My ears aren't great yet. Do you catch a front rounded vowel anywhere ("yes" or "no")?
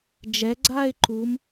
no